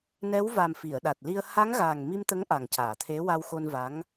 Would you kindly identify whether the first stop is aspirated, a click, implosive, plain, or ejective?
implosive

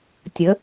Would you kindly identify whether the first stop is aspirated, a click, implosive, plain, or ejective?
plain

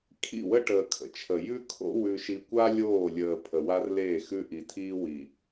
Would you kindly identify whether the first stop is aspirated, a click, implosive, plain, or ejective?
aspirated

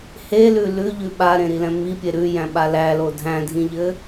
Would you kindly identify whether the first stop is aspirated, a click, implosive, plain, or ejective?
implosive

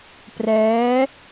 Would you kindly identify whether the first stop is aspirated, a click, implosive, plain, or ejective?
plain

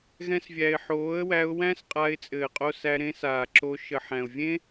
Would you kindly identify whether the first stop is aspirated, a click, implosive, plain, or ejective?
ejective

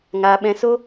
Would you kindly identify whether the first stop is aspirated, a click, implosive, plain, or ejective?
implosive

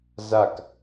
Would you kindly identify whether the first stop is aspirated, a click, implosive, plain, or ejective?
plain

